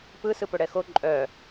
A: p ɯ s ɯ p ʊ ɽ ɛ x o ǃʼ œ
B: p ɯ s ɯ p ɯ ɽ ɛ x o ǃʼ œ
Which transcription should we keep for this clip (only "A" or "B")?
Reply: A